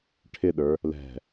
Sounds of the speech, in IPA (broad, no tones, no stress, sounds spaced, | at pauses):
ʈʰ ɪ ɗ ə˞ | l ɛ̤